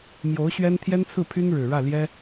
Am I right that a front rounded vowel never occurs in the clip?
no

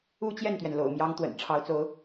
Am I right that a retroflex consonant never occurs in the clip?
no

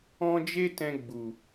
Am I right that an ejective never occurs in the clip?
yes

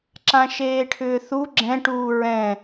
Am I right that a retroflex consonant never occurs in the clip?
no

